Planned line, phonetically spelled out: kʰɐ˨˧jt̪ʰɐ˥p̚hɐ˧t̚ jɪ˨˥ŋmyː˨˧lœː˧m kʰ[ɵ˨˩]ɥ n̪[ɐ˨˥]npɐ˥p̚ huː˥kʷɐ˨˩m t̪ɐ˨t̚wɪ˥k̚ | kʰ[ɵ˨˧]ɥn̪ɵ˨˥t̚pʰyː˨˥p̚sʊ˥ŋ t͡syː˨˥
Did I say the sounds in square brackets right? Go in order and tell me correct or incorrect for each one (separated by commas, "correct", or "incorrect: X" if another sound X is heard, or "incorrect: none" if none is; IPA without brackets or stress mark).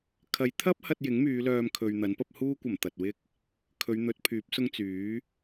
incorrect: ɵ˨, correct, correct